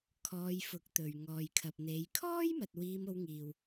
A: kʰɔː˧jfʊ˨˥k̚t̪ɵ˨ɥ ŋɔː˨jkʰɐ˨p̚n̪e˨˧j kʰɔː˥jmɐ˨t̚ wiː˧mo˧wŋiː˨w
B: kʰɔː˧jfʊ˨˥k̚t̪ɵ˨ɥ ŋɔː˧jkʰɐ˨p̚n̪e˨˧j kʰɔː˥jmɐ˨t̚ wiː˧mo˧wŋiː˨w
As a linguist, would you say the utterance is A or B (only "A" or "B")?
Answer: A